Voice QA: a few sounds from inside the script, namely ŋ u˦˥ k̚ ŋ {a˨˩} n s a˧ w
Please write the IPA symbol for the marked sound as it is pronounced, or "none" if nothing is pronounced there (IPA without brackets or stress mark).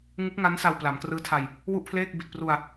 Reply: a˦˥